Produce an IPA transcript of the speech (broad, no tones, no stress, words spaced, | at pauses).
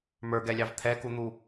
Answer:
mə˞ɡɛlʲɑv t̪ʰɛkun̪u